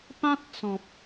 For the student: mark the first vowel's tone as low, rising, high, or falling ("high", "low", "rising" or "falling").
high